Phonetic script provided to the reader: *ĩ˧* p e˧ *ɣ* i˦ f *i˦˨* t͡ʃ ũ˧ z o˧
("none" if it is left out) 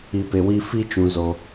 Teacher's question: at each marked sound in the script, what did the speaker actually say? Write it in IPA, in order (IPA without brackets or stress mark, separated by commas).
i˧, w, i˦